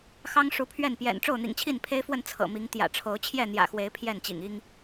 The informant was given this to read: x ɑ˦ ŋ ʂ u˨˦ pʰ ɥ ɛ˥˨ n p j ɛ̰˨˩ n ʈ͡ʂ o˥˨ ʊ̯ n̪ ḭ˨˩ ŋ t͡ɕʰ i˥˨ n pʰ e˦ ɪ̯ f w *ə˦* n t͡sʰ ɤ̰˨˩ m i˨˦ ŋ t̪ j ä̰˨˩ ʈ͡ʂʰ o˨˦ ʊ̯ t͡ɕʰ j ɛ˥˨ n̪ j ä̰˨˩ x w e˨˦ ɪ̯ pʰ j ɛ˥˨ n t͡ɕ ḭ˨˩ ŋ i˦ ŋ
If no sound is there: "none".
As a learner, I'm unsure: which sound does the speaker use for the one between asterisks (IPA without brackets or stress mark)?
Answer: ə˥˨